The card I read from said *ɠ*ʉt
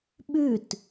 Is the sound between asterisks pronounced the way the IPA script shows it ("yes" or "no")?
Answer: no